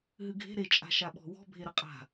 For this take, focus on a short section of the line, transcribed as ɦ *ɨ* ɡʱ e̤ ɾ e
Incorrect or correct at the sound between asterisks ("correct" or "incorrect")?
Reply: correct